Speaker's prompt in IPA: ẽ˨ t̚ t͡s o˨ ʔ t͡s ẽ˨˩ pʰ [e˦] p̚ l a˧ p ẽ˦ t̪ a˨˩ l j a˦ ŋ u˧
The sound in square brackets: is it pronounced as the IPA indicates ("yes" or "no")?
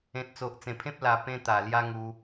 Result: no